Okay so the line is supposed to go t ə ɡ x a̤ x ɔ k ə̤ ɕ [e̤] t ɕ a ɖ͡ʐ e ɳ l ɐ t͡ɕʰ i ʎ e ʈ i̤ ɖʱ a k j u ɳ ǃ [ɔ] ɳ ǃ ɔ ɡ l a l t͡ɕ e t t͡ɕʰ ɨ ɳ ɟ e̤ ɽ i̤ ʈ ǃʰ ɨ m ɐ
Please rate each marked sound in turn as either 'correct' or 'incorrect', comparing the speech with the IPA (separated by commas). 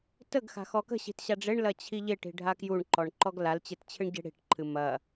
incorrect, correct